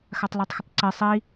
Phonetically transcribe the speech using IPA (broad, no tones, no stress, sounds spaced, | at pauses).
x a tˤ l a tˤ x ə tˤ ǀ e sˤ i